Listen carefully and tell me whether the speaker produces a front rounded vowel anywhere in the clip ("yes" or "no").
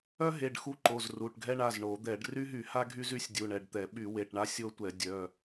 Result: yes